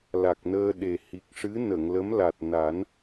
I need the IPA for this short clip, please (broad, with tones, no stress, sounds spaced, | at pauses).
l a˨˩ k̚ n əː˧ ɗ e˨˩ h i˨˩ k̚ ʂ ɨ˧˥ n ə˨˩˨ ŋ l ə˧˥ m l a˨˩ t̚ n a˨˩˦ n